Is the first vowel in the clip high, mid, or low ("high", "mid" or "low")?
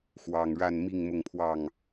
low